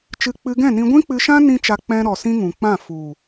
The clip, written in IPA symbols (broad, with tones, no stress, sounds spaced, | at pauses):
t͡ʃ ɨ˧ k͡p ɨ˧ ɡ ɛ̃˦˨ n ĩ˧ ɡʷ ĩ˦ k͡p ɨ˧ ʃ ã˦ n ĩ˦ t͡ʃ a˧ k͡p ɛ̃˧ ɾ ɔ˨ s ĩ˧ ŋ ũ˨ k͡p ã˦˨ f u˨